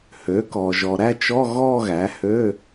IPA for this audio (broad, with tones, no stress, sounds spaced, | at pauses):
h ø˩˥ k ɔ˨ ʒ ɔ˨ ɾ æ˥˧ t͡ʃ ɔ˧˥˧ ɣ ɔ˥˧ ɣ æ˩˥ h ø˧˥˧